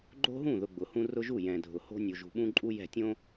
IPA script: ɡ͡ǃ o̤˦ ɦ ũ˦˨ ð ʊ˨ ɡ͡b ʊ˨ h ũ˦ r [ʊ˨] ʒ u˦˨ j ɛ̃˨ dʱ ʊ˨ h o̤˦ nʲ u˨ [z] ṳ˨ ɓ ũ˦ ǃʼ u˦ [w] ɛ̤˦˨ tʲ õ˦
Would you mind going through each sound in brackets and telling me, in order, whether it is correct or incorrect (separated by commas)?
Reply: incorrect, incorrect, incorrect